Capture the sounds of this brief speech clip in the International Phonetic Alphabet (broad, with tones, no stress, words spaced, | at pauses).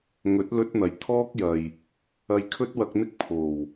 ŋɵ˨˥t̚ lɵ˥t̚n̪ɐ˨˩j t̪ʰɔː˥k̚jɐ˨j | ɐ˧jkʰɵ˥t̚wɐ˧k̚n̪ɪ˥k̚ pʰo˨˩w